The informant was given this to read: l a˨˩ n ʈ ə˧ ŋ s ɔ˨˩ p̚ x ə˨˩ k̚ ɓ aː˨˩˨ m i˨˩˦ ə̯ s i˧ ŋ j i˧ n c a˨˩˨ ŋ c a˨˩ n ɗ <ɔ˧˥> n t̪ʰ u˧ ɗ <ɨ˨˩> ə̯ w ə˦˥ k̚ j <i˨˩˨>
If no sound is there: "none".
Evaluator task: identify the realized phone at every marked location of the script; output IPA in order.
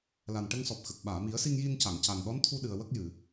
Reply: ɔ˧˥, ɨ˨˩, ɨ˨˩˨

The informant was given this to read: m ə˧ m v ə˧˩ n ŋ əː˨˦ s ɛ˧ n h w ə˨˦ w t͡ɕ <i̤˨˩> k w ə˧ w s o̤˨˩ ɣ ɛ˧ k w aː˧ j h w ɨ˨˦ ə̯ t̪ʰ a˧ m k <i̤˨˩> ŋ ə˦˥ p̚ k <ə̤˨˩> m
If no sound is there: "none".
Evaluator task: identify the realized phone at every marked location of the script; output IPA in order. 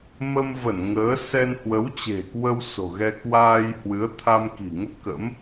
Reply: e̤˨˩, i̤˨˩, ə̰˧˥

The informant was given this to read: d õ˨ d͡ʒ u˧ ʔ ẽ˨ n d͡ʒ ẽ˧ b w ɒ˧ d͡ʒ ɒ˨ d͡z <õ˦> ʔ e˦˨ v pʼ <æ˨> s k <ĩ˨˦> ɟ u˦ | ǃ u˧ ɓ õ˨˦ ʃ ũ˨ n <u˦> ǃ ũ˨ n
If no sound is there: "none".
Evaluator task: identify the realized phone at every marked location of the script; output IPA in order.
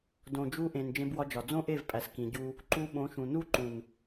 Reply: õ˦, æ˨, ĩ˧, u˦

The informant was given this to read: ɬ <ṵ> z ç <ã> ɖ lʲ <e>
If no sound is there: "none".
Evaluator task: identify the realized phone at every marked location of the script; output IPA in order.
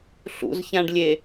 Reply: ṵ, ã, e

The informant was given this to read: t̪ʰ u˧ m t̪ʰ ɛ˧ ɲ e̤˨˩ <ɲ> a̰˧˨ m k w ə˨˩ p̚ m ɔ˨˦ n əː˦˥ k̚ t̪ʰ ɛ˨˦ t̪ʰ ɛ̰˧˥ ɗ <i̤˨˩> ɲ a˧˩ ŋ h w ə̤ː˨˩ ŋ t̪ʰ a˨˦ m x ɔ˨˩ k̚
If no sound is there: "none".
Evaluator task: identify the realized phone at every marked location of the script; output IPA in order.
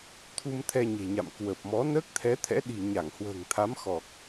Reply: ɲ, i̤˨˩

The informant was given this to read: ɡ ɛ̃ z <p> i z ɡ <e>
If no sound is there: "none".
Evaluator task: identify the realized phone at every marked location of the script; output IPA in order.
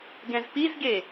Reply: p, e

